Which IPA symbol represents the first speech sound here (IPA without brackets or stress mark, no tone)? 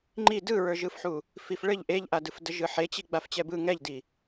ŋ͡ǃ